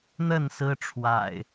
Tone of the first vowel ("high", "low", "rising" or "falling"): falling